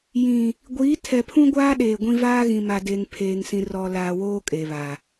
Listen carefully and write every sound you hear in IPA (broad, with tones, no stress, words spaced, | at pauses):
jĩ˨ | ɡʷiː˨˦tʰɛ˨pʰũ˦ɡʷaː˦ ɗeː˨ɡʷĩ˦ vaː˦ɣĩ˨ma˨ deː˨ŋpʰeː˨ŋsĩ˨ rɔ˨ laː˨woː˦ kʼe˨βa˨